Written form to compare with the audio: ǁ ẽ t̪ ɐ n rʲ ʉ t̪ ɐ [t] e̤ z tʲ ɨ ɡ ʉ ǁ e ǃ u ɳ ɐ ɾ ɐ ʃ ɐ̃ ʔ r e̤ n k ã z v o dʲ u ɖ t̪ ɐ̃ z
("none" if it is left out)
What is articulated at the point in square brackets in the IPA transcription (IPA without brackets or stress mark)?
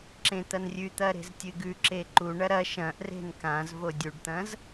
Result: ɾ